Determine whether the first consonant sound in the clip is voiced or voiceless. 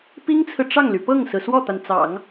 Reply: voiceless